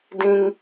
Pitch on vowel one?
high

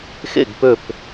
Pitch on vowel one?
falling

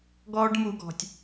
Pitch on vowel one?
high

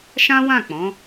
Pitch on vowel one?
high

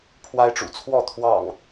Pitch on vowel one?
high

